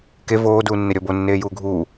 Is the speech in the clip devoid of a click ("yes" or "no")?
yes